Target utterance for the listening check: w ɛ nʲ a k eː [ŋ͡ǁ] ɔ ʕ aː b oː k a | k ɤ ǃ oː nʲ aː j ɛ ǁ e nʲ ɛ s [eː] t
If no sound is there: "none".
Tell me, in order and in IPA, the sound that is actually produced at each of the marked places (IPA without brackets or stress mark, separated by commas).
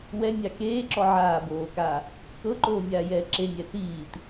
ǁ, iː